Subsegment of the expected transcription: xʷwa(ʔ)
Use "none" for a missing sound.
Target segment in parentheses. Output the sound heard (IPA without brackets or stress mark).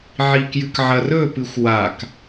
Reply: k